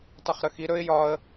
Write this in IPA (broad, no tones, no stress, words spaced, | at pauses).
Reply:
tˤʊχɾəxi ɾɵɪ̯ jɒə̯